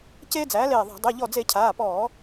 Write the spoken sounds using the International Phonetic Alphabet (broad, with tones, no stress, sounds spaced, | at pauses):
c eː˦ d͡z æː˩˥ l eː˧˩ ðˤ a̤˧˩˧ dˤ e˩˧˩ ʎ ɔ˧˩ d͡z e˧˩˧ cʰ aː˩˧˩ p ɔː˧˩˧